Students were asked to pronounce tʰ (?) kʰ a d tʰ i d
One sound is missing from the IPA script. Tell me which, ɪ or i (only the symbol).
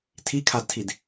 i